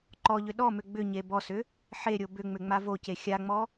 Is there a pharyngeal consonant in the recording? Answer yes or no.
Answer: yes